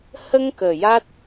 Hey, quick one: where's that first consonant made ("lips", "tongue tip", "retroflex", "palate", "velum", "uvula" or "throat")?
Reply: throat